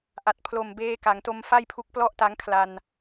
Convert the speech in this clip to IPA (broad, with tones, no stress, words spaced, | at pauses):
ʔa˨˩t̚pʰlo˨˩mbeː˧ ka˩˦ŋto˧mfa˥˩jpʰu˦˥k̚ plɔ˥˩ʔta˦˥ŋkʰla˧n